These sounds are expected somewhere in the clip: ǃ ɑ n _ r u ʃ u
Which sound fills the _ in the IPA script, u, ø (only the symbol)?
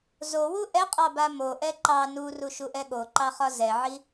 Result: u